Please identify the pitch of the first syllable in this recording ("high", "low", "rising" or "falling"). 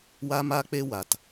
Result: high